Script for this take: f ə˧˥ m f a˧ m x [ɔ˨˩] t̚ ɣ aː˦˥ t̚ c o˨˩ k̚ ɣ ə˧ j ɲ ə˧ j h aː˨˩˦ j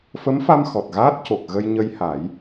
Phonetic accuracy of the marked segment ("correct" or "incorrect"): correct